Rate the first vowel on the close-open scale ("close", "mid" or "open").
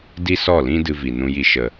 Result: close